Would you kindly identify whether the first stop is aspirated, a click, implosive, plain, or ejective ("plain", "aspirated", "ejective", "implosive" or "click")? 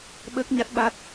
implosive